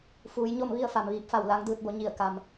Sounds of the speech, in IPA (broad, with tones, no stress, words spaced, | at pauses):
fuː˩˧jɲo˥˨m ʋi˥˨ə̯fa˩mʋiː˧˩p̚fa˧˩w la˧˥ŋdɯː˧t̚bo˧ ɲi˧˩ə̯ ka˩m